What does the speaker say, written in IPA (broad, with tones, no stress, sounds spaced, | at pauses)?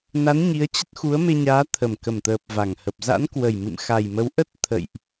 n a˨˦ n ɲ i˨˦ ə̯ t͡ɕ ə˦˥ t̚ x u˨˦ ə̯ m e˧ ɲ aː˨˦ t̪ʰ ə˨˩ m k ə˨˩ m t̪ əː˨˩ p̚ v a˧˩ ŋ h ə˨˩ p̚ z a̰˧˥ n k w ə˨˩ j m ɨ̰˧˨ m x a˨˩ j m ə˨˦ w ʔ ə˦˥ t̚ t̪ʰ ə̰˧˨ j ʔ